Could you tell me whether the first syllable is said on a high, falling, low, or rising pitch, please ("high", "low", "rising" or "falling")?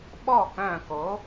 falling